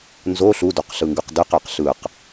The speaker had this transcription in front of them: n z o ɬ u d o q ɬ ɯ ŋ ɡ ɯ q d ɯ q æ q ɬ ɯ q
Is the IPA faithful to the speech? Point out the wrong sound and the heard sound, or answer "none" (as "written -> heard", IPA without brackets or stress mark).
none